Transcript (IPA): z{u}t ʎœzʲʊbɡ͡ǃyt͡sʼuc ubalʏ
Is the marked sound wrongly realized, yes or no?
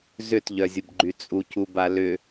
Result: yes